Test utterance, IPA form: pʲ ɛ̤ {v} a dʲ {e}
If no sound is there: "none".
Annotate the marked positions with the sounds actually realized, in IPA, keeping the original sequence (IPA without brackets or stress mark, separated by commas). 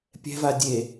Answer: v, e